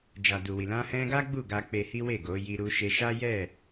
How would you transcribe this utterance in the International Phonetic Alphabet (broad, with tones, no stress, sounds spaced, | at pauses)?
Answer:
d͡ʒ a˨ d u˨ w i˨ l ã˧ h ɛ̃˧ ɡ a˦ ɡ͡b u˦˨ ɡ a˧ k͡p e˧ h i˦ w e˦˨ ɡ o˨˦ j i˧ ɾ u˧ ʃ e˧ ʃ a˦ j ɛ˦˨